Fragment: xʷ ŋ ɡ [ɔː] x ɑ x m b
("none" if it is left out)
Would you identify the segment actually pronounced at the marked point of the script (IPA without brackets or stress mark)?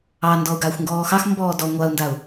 ɔː